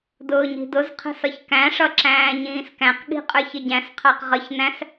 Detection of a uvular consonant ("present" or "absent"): present